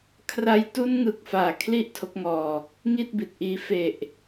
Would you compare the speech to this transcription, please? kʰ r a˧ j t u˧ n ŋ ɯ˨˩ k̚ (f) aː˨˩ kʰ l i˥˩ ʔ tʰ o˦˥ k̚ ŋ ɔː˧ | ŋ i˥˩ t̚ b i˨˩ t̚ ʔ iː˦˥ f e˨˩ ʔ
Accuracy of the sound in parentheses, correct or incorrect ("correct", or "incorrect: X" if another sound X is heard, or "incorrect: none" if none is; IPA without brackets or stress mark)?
correct